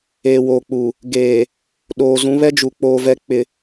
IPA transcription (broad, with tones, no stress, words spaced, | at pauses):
eː˨woː˨k͡pu˨ | ɡeː˨ | ɗoː˨zũ˨˦ βɛ˦d͡ʒu˨k͡poː˨vɛ˨˦ k͡pɪ˨